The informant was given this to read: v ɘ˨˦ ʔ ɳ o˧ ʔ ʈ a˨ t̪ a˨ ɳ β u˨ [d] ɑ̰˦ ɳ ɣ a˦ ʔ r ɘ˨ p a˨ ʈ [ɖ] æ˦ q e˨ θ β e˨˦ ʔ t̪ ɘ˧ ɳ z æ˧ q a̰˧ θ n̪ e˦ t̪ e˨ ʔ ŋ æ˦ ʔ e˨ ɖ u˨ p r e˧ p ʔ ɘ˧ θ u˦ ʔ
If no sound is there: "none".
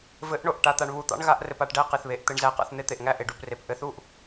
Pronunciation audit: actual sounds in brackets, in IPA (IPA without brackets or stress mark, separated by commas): t̪, ɖ